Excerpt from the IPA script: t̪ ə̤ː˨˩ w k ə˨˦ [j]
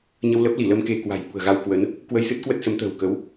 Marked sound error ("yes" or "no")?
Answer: yes